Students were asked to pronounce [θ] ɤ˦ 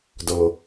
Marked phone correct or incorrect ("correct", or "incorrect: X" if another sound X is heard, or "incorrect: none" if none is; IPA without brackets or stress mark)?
incorrect: d